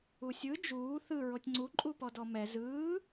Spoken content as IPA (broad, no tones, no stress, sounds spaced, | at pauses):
u sʲ ɯ d͡ʒ uː θ ɯ ɹ o tʲ ŋ͡ǀ u ǃʼ u p ɔ d ɔ m ɛ z ɯː